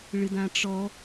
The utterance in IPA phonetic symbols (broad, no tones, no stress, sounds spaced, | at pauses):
ɭ ɨ d ã ʈ͡ʂ ɔ